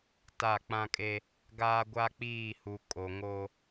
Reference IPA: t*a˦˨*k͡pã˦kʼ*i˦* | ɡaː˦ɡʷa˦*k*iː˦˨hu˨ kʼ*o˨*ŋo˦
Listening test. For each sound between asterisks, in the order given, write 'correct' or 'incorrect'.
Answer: correct, incorrect: e˦, incorrect: k͡p, correct

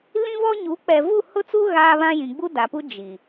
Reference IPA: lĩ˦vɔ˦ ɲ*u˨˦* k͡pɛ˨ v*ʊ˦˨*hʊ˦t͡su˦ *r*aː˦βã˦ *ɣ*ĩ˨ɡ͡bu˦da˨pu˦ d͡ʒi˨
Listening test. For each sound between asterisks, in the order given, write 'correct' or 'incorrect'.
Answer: correct, incorrect: u˦˨, incorrect: ɣ, incorrect: j

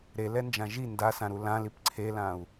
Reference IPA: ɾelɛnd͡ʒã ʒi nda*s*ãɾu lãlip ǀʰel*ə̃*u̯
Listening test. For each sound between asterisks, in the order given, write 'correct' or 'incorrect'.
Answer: correct, incorrect: ã

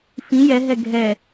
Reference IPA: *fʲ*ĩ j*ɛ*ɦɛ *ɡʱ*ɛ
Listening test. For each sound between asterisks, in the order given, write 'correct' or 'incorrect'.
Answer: incorrect: f, correct, correct

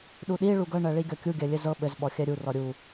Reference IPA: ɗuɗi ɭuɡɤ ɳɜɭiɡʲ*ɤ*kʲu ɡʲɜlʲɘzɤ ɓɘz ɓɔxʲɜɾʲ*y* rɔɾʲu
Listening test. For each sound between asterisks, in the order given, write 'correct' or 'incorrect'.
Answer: incorrect: ɔ, incorrect: u

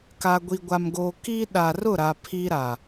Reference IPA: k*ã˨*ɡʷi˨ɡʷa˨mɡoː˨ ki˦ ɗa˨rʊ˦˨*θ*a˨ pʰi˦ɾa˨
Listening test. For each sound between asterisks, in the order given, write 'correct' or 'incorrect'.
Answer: incorrect: a˨, incorrect: ɾ

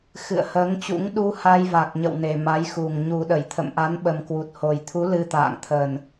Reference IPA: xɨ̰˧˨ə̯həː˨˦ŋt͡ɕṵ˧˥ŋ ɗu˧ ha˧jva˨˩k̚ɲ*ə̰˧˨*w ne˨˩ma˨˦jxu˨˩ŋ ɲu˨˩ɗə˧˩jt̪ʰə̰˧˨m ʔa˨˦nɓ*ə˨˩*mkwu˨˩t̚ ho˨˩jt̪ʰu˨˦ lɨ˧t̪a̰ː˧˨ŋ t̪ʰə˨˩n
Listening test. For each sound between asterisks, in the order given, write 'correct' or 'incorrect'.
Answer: correct, correct

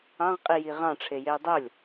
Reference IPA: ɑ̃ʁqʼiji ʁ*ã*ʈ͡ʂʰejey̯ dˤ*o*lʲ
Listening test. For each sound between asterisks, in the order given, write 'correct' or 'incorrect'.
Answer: incorrect: ɑ̃, correct

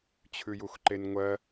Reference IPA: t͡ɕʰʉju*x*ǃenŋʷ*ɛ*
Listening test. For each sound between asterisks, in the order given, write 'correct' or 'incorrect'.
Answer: correct, incorrect: ɜ

